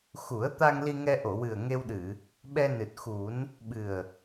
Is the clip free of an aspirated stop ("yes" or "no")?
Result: yes